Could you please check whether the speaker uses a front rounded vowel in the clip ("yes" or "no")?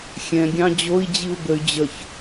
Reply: yes